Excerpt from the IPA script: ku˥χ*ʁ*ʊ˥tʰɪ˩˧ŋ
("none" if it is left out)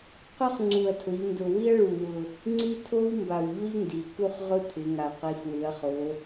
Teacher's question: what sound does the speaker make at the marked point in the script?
ʁ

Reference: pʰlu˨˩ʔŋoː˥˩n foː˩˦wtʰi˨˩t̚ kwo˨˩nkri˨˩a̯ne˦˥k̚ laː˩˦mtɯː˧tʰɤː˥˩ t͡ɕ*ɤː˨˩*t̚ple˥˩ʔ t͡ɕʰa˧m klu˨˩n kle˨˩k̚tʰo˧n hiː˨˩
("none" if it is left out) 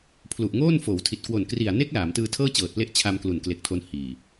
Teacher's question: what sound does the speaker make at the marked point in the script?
ɤː˨˩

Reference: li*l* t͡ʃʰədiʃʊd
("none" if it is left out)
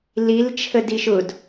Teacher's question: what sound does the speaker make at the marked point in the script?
l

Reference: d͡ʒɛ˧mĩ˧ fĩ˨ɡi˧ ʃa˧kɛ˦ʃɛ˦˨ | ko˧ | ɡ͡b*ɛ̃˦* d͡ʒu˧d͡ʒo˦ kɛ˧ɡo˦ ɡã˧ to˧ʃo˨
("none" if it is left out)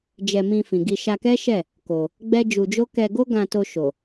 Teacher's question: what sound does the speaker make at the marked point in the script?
ɛ˦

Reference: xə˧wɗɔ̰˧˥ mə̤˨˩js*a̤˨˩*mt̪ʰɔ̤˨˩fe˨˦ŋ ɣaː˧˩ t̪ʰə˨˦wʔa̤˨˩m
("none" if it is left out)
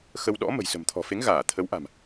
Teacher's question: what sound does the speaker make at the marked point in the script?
ə̤˨˩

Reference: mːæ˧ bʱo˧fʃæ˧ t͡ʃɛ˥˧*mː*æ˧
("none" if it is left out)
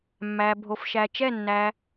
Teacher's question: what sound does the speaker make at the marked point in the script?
nː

